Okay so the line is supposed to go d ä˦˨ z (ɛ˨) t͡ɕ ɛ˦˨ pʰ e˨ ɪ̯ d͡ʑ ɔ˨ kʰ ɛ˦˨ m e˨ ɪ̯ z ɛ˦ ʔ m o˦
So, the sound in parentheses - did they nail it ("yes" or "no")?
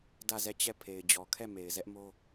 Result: no